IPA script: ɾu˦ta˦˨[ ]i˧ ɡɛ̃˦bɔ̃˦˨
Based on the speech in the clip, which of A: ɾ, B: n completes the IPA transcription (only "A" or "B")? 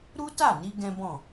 B